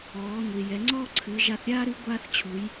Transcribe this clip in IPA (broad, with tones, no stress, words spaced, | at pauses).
ɔː˩˧ ŋʷi˩jɛ˩˧ŋ͡ǀɔː˥ ǀʰɨː˩˧ʒa˧θɾʲa˥ɾɨ˧˥ ɡʷaː˧θ t͡ɕʰu˩˧j